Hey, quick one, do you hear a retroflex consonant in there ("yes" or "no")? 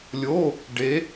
yes